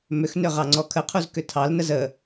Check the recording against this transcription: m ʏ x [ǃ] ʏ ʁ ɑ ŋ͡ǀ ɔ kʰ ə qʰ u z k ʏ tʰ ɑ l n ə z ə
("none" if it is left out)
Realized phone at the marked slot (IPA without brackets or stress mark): n